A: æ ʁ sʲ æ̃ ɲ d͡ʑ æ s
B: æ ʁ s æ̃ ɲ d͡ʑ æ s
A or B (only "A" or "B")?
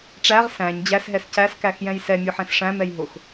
B